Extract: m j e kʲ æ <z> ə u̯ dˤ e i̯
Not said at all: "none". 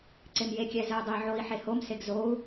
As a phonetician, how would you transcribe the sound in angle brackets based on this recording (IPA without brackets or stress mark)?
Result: z